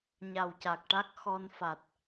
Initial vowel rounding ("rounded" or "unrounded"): unrounded